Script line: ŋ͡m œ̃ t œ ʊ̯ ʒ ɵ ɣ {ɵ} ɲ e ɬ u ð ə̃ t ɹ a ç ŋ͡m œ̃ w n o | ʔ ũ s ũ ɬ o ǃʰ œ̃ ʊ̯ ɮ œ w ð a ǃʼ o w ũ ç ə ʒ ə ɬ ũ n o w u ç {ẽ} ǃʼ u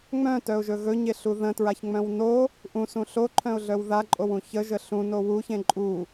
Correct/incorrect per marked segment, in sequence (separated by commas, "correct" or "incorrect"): correct, correct